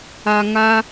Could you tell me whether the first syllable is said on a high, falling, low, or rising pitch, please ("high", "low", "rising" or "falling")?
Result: high